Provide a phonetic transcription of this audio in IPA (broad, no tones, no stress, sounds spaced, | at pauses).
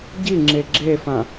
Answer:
ɟ i ŋ͡ǁ e ɡ͡ǁ e f ã